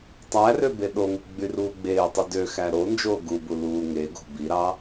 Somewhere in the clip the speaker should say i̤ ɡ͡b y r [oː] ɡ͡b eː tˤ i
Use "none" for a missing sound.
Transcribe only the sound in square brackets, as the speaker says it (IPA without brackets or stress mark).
uː